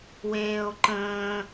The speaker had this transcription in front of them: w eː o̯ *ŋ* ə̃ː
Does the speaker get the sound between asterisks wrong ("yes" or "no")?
yes